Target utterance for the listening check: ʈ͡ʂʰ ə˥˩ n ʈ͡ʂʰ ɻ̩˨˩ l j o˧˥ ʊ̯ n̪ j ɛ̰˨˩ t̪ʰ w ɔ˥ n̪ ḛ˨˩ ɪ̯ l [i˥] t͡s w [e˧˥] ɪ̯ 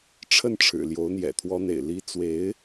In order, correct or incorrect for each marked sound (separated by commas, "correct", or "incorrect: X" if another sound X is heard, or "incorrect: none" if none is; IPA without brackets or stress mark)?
correct, correct